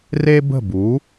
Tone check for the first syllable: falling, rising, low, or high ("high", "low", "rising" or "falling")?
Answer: high